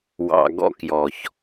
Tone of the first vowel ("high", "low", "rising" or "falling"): low